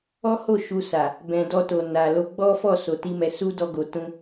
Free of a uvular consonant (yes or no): yes